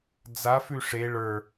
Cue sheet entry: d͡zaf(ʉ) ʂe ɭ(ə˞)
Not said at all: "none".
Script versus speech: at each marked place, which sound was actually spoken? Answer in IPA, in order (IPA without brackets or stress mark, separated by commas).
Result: ʉ, ə˞